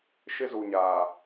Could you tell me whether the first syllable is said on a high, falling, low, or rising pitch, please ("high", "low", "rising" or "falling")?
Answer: high